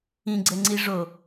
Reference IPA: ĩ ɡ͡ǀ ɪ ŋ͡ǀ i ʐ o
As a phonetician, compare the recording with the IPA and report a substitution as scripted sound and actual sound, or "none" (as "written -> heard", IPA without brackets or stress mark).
ɪ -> ɛ